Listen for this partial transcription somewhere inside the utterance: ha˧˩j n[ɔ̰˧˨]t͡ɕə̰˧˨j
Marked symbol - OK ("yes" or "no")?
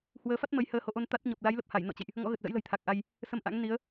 yes